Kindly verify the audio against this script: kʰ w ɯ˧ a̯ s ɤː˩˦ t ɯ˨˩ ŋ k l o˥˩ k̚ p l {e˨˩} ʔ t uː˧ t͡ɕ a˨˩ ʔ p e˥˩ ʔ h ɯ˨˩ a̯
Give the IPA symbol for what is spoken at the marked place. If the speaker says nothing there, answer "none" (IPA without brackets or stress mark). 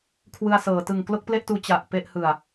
e˥˩